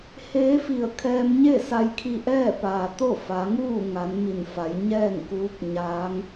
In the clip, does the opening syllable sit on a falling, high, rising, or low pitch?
rising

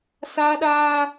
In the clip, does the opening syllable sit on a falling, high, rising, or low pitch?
high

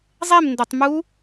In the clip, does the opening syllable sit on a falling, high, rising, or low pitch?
falling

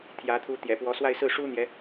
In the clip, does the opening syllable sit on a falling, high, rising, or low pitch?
rising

